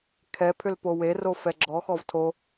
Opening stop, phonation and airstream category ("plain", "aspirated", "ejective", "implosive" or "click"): aspirated